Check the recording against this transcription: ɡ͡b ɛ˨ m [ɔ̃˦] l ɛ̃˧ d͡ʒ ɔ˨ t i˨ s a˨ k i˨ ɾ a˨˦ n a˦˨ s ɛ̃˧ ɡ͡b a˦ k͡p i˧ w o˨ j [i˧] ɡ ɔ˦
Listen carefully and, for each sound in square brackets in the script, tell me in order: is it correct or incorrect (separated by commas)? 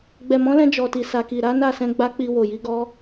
incorrect, correct